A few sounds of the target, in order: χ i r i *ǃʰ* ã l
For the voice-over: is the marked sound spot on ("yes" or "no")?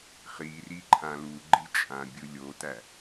yes